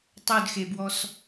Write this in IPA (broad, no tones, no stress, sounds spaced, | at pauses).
tˤ ɵ d x e b w ɔ s